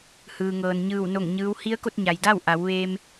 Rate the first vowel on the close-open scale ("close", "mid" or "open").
close